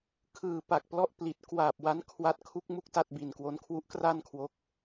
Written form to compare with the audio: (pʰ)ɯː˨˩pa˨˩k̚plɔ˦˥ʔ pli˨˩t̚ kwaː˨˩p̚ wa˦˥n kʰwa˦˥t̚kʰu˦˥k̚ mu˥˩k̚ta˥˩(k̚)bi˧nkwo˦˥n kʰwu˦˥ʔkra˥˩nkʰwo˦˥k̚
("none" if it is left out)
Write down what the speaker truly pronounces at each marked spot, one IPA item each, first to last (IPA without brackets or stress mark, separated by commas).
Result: kʰ, t̚